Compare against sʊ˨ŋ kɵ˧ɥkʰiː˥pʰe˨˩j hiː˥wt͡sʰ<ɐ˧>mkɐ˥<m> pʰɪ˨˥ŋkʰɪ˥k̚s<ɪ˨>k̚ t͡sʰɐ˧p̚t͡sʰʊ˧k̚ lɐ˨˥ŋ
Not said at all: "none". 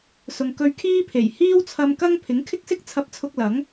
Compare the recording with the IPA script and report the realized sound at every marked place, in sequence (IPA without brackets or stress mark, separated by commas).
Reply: ɐ˧, ŋ, ɪ˥